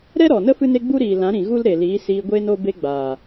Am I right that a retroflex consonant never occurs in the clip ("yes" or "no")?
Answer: yes